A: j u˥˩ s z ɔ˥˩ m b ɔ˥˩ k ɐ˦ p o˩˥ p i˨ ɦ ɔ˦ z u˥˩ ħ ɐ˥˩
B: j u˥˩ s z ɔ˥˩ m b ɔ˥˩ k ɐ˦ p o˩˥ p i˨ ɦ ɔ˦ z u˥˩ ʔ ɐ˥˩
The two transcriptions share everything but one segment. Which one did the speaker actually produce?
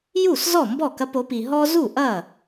B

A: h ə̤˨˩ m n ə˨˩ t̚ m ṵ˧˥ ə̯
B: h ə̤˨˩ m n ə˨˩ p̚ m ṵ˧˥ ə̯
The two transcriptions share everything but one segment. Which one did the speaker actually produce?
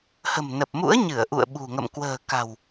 B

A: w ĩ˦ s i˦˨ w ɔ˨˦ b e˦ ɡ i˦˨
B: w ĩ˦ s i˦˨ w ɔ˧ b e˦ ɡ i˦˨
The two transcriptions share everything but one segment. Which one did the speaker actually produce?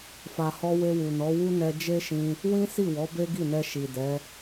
A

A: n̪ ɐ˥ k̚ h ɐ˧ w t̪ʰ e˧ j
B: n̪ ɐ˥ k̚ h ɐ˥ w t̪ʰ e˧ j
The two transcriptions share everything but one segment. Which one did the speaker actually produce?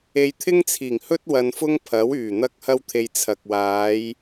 B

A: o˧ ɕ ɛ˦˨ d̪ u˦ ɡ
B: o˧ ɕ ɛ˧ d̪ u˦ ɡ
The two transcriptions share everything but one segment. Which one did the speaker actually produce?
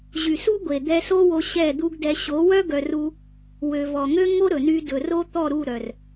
A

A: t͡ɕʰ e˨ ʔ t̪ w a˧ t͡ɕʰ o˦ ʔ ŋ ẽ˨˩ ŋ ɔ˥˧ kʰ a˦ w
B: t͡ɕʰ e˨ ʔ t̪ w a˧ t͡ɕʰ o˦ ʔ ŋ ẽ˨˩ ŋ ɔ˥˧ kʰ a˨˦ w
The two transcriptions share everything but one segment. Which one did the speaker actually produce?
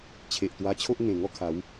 B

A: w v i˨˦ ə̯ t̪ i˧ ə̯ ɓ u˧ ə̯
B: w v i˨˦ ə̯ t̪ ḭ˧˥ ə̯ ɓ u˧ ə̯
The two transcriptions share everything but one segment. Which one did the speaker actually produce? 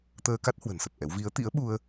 B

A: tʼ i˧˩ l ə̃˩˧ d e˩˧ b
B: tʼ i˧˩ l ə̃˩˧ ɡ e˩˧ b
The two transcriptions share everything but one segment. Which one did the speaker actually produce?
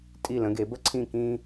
B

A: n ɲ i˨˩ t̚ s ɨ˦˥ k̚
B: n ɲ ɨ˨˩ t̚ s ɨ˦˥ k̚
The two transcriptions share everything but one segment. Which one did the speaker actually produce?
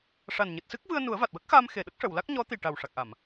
B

